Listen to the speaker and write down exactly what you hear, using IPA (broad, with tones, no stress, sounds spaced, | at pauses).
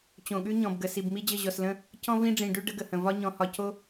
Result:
t͡ɕ õ˨ ɠ ʉ˦ ɲ ɔ̃˨ b ɡ ə˨ s i˨ b m i˦ d͡ʑ ə˦˨ ʑ ɔ˨ s l ə̃˦ | c ɔ̃˦ v ĩ˦ ɖ͡ʐ ĩ˨ ɖ ʉ˦ ɖ ə˦ ɡ ə˨ h ə̃˨ v ɒ˦ ɲ ɔ̃˨ h ɒ˨ c o˦